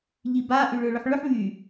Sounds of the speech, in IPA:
ʎiba ʔyɭʏʊ̯ɭʏħɭʏħ βy

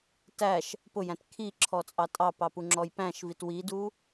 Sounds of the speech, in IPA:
tæʃ | pʊjæ̃t kʰiǁʰɔt͡sʼɑ tʼɑpɑpuŋ͡ǁɔj pæ̃ʃvit widu

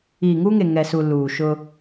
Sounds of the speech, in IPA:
iː˨ŋuː˦ŋe˨ ŋɛ˨su˨ luː˨ʃʊ˦

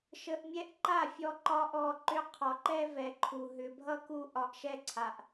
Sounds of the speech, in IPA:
ʃə˧ʔmʲɛ˦ʔ ǃa˦˨fʲɔ˧ ǃɒ˦ʔɔ˧ǃʏ˦ qʰɒ˨ǃɛ˧ vɛ˨ǃʰu˨ ɦʏ˨bʱʌ˦ku˧ ʔɒ˨ʔʃɛ˧ǀʰa˨ʔ

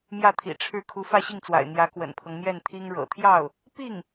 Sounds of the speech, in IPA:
mjä˥˩t̪ʰḭ˨˩ʈ͡ʂʰɻ̩˥˩ kʰu˧˥fä˥˧ɕi˥˩ŋt͡swa̰˨˩ɪ̯ n̪jä˧˥kwə̰˨˩npʰɤ˦ŋ n̪jɛ˥˩nt̪ʰi˥ŋ ɻɤ̰˨˩t̪ʰjɑ˥˩ʊ̯ | pi˥˩ŋ

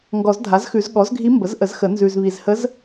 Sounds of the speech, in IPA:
ŋɡɔ˨˩˦zdʱa˩˥zxʉ˨˩˦z ɠɔ˩˥zɡʱi˧˥ mbə˩˥zʔə˨˩˦zxə˨˩˦ nzʉ˨zβi˨zhə˧˥z

